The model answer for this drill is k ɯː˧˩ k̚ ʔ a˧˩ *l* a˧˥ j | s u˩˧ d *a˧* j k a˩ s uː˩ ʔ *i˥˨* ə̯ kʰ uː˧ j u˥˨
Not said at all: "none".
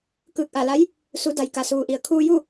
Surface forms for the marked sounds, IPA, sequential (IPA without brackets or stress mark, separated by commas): l, a˩, i˩